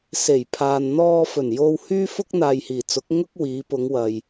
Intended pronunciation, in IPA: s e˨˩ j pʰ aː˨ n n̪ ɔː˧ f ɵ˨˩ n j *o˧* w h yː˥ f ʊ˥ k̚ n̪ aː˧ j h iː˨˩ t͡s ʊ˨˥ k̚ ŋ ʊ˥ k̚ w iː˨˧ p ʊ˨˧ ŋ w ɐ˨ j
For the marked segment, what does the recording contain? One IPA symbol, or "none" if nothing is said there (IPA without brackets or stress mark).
o˧